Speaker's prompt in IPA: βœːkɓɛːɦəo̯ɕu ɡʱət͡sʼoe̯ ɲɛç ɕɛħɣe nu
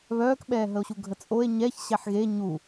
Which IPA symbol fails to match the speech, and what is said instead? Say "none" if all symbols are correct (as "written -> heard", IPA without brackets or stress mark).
n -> ɲ